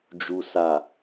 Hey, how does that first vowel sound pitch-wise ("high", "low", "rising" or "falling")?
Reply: low